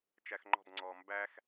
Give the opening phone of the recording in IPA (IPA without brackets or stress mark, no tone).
t͡ʃ